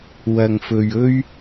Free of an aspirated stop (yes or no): yes